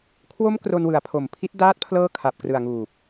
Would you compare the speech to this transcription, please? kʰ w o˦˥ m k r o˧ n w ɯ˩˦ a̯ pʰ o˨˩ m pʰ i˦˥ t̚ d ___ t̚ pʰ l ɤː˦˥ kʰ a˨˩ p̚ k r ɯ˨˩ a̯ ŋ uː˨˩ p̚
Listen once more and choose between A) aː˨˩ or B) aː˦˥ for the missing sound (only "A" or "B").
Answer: B